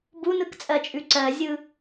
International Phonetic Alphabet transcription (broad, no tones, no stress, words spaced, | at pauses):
bunɯkt͡sʼɜt͡ʃʼʉ ǀɜzʲɯ